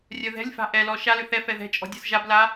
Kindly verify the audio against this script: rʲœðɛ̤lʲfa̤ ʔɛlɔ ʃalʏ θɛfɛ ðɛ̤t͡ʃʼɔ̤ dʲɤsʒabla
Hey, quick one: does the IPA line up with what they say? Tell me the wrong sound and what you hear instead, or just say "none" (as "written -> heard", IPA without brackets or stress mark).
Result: none